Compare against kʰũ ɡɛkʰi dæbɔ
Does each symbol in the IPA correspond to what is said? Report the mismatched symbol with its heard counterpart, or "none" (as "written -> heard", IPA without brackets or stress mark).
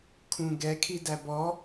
none